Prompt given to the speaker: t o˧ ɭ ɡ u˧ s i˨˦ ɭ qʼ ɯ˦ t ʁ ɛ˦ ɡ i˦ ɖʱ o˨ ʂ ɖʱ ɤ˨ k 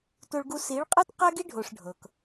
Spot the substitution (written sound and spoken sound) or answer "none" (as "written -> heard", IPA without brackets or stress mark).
ʁ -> q